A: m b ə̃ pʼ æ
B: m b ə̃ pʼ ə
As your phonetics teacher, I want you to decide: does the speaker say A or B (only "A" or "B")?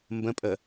B